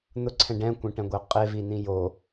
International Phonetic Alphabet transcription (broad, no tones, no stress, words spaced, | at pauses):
n̪ʊǀʰɛ̃ ɖɛ̃kʷɛ̃ʈɛ̃ɡʷɛ qʼe vin̪ĩ jo